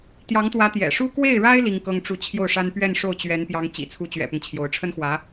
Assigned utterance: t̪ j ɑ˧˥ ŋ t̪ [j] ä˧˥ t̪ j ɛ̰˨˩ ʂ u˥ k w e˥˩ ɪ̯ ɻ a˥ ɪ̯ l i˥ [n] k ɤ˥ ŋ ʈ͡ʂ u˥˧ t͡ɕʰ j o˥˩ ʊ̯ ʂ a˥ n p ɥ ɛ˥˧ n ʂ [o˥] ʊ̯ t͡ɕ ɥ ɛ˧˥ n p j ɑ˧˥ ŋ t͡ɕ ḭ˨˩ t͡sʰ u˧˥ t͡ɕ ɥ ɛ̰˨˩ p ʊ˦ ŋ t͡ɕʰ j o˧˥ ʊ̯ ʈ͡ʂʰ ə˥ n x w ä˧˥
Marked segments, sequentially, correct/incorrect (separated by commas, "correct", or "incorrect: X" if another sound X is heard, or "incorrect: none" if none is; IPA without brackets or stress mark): incorrect: w, incorrect: ŋ, incorrect: o˥˩